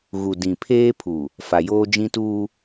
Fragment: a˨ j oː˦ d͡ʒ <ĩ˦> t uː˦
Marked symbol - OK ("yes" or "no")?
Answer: yes